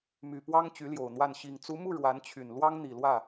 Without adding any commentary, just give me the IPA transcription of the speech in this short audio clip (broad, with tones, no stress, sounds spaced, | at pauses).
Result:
m y˨˩ p w ɑ˥ ŋ t͡ɕ y˧˥ l j o˨˩ ʊ̯ n̪ w a˥˩ n ɕ i˨˩ ŋ t͡s u˧˥ m u˥˩ ɻ w a˧˥ n t͡ɕʰ y˨˩ n l w ɑ˥ ŋ n̪ i˨˩ l w ä˥˩